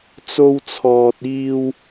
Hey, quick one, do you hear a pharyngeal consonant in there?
no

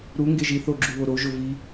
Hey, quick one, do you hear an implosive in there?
no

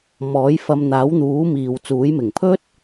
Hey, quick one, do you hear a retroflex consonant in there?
no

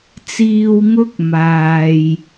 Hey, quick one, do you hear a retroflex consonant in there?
no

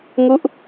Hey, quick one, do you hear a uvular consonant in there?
no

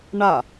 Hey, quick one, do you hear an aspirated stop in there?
no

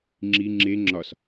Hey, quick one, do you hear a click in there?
yes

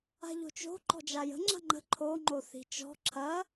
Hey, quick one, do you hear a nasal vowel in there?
no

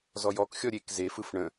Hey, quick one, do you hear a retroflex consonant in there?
yes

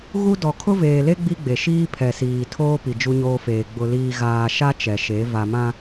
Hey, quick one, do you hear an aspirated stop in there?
yes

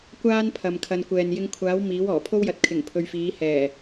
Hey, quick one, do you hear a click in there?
no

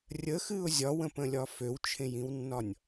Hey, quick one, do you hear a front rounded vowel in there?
yes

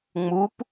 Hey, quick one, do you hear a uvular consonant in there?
no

